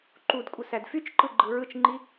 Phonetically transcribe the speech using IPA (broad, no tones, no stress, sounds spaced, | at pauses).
ǃ u d kʷʼ ɯ s æ d f y t͡ʃ ǃ ɯ ɡ͡ǃ ɯ ɹ ɯ t͡ʃ ŋ͡ǃ i